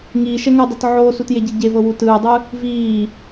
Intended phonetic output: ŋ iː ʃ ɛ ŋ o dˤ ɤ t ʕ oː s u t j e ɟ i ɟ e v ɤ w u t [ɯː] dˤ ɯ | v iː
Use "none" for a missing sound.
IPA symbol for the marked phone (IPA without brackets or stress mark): ɯː